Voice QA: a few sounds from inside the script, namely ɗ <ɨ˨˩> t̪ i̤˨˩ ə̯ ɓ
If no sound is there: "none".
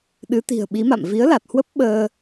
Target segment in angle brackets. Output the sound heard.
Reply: ɨ˨˦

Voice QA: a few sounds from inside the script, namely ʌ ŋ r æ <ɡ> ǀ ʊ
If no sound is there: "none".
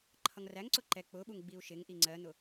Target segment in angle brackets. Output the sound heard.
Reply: ŋ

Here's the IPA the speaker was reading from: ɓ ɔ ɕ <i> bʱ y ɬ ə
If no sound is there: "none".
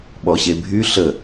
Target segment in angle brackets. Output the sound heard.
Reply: e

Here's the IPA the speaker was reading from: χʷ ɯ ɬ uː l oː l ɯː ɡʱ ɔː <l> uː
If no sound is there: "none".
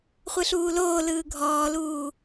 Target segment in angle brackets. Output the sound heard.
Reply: l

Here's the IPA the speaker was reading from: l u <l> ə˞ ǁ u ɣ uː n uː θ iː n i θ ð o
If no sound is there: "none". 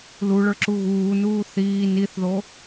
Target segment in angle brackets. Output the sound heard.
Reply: ɭ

